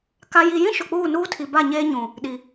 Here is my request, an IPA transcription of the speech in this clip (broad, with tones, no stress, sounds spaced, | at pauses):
k a˨ j i˨ j ĩ˦ ʃ ʊ˨ k͡p uː˦˨ n uː˦ tʰ i˨ b a˦˨ ɲ eː˦ ɲ ũ˨ | ɗ i˨